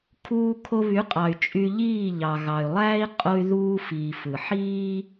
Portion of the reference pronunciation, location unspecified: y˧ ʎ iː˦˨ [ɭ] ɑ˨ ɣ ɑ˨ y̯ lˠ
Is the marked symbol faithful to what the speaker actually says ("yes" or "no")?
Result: no